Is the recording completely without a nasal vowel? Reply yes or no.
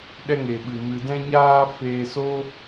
no